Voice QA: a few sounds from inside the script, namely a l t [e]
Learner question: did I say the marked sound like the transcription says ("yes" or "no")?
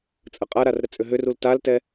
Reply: no